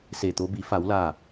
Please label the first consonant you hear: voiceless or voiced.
voiceless